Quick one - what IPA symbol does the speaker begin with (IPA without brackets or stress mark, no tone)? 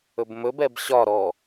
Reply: ɵ